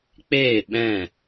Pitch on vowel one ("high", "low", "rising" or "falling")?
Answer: falling